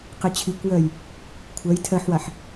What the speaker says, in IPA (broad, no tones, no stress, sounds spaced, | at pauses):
q i t͡ɕʰ i kʷ j ɜ j | kʷʰ ɜ j tʰ ɜ ħ w a ħ